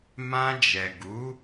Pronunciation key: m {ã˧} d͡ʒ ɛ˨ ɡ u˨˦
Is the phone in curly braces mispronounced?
no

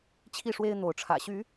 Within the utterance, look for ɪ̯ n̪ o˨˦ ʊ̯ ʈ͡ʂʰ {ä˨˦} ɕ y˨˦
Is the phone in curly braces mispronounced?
yes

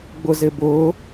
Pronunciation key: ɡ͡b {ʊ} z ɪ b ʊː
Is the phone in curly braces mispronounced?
no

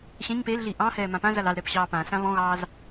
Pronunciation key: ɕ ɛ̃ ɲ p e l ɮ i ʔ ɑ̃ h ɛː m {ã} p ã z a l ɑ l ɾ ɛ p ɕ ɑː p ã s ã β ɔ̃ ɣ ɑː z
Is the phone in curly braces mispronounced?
no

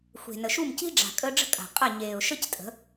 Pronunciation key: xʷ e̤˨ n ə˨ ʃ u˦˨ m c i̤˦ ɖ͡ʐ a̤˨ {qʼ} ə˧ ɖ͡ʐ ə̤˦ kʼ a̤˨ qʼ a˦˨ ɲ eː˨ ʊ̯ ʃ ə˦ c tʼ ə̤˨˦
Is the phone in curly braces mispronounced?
yes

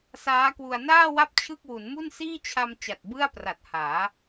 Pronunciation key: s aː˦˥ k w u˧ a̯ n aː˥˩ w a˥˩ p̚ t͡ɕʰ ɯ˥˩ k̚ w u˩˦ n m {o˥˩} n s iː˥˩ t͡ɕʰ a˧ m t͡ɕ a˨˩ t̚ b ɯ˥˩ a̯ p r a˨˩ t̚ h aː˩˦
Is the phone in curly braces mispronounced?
yes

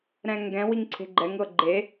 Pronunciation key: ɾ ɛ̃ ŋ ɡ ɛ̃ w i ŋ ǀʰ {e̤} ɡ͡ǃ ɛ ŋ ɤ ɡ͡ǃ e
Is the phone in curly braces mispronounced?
no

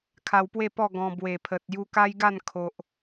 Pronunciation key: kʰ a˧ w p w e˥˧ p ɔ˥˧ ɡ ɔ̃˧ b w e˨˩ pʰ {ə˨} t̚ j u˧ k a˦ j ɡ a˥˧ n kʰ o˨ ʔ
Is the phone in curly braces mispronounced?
no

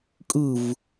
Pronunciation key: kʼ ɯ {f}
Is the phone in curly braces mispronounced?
yes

